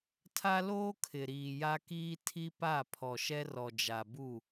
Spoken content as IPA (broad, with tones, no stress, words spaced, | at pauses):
tʰa˦loː˦ kʰɪ˨ɾiː˨ja˦ kiː˦tʰi˦pa˦˨ pʰɔ˨ʃɛ˦ rɔ˨d͡ʒa˨bu˦˨